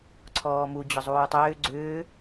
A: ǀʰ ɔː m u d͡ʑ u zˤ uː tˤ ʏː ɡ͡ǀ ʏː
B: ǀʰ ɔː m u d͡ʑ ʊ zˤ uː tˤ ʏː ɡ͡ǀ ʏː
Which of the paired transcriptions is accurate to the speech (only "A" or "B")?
B